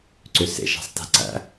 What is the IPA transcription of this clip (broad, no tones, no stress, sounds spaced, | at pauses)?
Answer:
ǀ ʏ s ḛ ʃ æ̤ sˤ t æ̤ ǀ æ̰